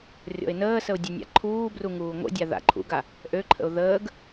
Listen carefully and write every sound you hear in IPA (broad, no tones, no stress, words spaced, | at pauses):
rʲɔ̰ɪ̯nəːsəʊ̯ dʲenʲa̰ǃʰuːbru ŋuːŋʷə̰dʲa ða̰ǃʰṵɡa | ʔøǃʰə̰ʊ̯ ðəːɡ